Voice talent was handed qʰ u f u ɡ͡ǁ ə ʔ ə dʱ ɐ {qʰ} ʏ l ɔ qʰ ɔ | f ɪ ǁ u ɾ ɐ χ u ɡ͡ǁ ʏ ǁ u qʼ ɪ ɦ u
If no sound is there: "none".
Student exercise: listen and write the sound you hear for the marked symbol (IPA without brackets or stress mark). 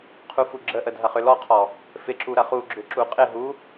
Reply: χ